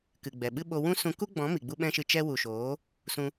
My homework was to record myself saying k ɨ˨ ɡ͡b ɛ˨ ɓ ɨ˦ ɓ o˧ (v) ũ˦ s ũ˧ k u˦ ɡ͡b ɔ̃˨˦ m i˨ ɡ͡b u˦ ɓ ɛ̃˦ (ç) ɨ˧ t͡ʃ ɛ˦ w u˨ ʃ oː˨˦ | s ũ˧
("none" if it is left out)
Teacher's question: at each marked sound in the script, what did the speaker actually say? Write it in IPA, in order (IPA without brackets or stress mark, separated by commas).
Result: w, ʃ